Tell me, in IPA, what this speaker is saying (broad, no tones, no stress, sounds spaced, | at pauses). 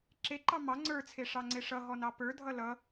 ǁ e ǃ ɑ m ɑ ŋ͡ǀ ə˞ t͡sʰ e ʂ ɑ ŋ͡ǀ e ʂ ʌ ɦ ɔ n ɑ p ə˞ dʱ ʌ l ʌ